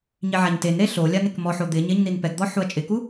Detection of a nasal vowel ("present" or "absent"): absent